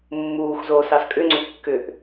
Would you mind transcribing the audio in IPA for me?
mː uː x z oː s ɑ s kʼ ʏ ŋ͡ǀ ʏ kː ʏ ʔ

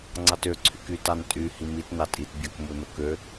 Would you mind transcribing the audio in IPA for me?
ŋ͡ǀ ɑ t ø ǀʰ y k y t ɑ n tʼ y h i m i t n ɑ tʼ i t bʲ ɑ k m u n o k ø

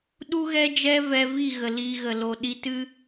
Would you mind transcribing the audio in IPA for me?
ɗ u˦ ɣ ɛ˦ d͡ʒ ɛ˦ v ɛ˧ v i˦˨ ɣ ə˨ l i˧ ɣ ə˨ l o˨ ɗ i˧ t ɨ˦

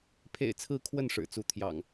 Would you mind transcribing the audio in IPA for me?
pʰ ḛ˨˩ ɪ̯ t͡sʰ ɹ̩˨˦ kʰ w ə˥˨ n ʂ ɻ̩˨˩ t͡s u˨˦ t̪ʰ j ɑ̰˨˩ ŋ

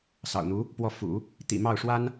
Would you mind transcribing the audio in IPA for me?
s ɑ̰˨˩ ʊ̯ n̪ u˧˥ | p w ɔ˥˩ f ṵ˨˩˦ | t̪ ḭ˨˩ m ɑ˥˩ ʊ̯ ʂ w a˥ n

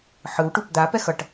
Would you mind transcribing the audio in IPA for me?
ħ ɯ w ʈ u p d̪ a p ɛ x ʌ ʈ

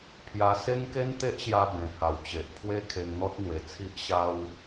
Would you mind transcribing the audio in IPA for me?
pʰ j a˧ s e˦ ŋ k e˦ n t̪ e˦ ʔ ɕ j a˧ b ẽ˨˩ h a˨˩ w t͡ɕ e˨ ʔ pʰ w e˦ kʰ e˧ ŋ n̪ ɔ˦ t̚ n̪ w e˨˩ t͡sʰ i˦ ʔ ɕ a˦ w

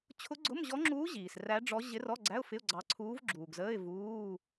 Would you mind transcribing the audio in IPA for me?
t͡ɕʰ ʊ˧˥ ɡ͡ǀ ʊ˧˥˧ m ʑ ɔ˧˥ ŋ͡ǁ uː˧˥ ʑ iː˨ s r æ˧˥ ɖ͡ʐ ɔ˧˥ ʑ ɪ˧˥ r ɔ˧˥˧ ɡ͡ǀ æ˧˥˧ ʊ̯ f ɪ˧˥˧ ʊ̯ ɡ͡ǀ ɑ˧˥ ǀʰ uː˧˥ v ɡ͡ǁ uː˨ ɡ z əː˧˥˧ ɪ̯ v uː˧˥˧

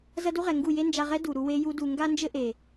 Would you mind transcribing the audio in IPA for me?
z ɐ˦ d u˦ ʁ ɛ˨ ŋ ɡ u˦˨ j e˦ n d͡ʒ a˧ ʁ ɛ˦ d u˨ ɾ u˧ w e˦ j u˦ d u˧ ŋ ɡ a˦ n d͡ʒ ɘ˦ ʔ e˨

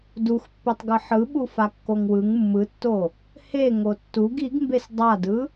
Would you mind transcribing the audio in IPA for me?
d u x pː e tˤ ɡ ɯ ħ ɯ ɓ u f a kː o ŋ w ɯ ŋ mː ɯ tː o | h e ŋ o tː u ɡ i ɡ m b e s dˤ a d ɯ

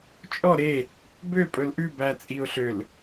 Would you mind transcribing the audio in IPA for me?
t͡ʃʼ ɔ ɾ e | b ø pʼ ɵ l ʔ ʉ b æ t͡sʼ i ʊ̯ ɬ ø l

